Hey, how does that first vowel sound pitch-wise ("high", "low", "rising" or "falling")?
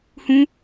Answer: high